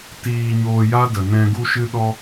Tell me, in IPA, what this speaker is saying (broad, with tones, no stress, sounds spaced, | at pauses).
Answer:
t iː˧ ɲ oː˧ j a˦ d ə˨ n ɛ̃˧ ɡ u˦ ʃ ɨ˦ ɗ ɔ˦